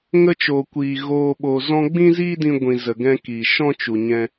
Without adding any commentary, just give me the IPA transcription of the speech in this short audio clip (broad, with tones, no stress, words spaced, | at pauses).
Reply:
ŋə˧t͡ʃoː˨kʷiː˨ ɣoː˨ɓoː˨ zɔ̃˧ɡ͡bĩ˦ziː˦dĩ˧ ɡʷĩ˨ zə˨ɡɛ̃˧kiː˨ ʃɔ̃˦t͡ʃu˨ɲɛ̃˧